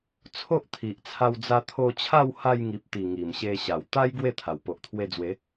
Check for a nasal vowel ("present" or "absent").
absent